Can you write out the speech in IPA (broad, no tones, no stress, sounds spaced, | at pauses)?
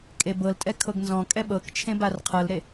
kʼ e b ɤ l tʼ ɛ kʰ ɤ ɡ n z ɔ̃ kʼ ɛ ɓ ɤ k t͡ʃʰ ẽ b a r qʰ ɤ l ɾ e